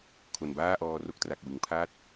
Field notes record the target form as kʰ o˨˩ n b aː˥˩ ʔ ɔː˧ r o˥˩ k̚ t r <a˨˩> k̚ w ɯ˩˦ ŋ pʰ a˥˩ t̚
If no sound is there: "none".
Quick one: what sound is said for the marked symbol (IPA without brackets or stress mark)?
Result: a˨˩